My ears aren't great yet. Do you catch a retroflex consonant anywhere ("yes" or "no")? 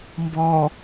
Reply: no